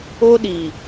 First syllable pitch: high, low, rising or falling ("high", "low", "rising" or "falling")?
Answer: high